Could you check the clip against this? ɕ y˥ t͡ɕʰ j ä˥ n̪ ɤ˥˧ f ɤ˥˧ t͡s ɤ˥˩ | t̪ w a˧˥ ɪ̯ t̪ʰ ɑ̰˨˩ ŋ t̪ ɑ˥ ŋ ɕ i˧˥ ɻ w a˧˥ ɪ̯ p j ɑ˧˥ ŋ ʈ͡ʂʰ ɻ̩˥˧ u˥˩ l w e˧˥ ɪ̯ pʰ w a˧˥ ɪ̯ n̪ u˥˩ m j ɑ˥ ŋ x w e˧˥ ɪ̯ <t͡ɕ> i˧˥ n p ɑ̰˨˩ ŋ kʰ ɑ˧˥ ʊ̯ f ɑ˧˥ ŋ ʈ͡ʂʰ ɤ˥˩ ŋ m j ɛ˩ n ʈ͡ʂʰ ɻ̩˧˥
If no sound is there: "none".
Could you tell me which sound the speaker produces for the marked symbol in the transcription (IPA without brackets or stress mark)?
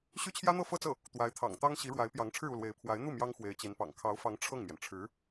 t͡ɕ